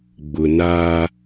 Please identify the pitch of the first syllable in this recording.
low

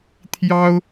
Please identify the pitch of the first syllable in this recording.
high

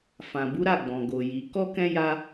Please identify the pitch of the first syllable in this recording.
low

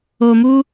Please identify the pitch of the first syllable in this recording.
low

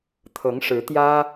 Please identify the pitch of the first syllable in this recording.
rising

